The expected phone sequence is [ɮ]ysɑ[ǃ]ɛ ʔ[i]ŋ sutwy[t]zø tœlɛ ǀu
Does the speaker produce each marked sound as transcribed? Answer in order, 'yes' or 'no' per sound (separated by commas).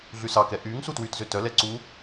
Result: yes, no, no, yes